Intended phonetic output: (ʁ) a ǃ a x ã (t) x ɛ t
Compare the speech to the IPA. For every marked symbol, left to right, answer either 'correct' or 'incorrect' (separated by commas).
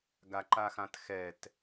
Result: incorrect, correct